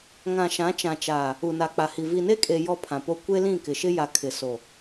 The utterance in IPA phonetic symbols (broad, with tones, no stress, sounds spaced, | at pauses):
ŋ ã˨ ʃ ã˨˦ t͡ʃ ã˨ t͡ʃ aː˨ | u˨ n a˨ k͡p a˨ h i˨ v i˨ n e˦ kʼ e˨ j ɔ˦ pʰ ã˨ p o˦ kʷ e˦ l ĩ˦˨ k ɪ˨ ʃ ɪ˦ j a˨ kʰ ɪ˨ s o˨